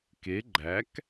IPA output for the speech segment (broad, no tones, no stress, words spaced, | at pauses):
ke ɡ͡ǃæk